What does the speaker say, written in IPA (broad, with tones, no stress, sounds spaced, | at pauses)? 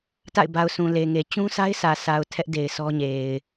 t a̰˦˨ ɪ̯ b a˨ ʊ̯ sʰ ũ˨ l e˨ ŋ e˨ t͡ɕ ũ˦ sʰ a˦ ɪ̯ s ä˨ s a˨ ʊ̯ tʰ ɛ˦ ʔ d e˨ ɪ̯ sʰ ɔ˦ ɲ e˨ ɪ̯